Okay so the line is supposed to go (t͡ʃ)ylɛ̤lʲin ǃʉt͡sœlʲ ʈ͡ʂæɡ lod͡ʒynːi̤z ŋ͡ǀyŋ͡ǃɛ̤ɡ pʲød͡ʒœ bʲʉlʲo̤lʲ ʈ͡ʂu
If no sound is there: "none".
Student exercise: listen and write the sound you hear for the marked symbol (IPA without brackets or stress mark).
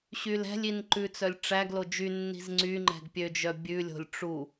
ɕ